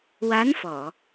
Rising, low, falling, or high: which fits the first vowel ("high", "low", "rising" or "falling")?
rising